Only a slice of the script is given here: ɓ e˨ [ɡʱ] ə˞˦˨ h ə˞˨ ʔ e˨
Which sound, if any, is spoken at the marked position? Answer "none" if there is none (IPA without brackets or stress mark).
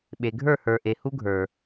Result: ɡʱ